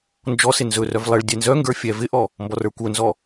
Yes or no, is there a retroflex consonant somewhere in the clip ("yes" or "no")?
yes